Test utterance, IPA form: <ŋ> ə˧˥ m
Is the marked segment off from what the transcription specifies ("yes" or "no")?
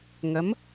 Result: no